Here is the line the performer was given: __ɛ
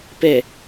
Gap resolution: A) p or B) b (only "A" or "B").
A